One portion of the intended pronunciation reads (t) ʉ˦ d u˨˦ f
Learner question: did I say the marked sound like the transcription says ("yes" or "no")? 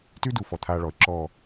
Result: yes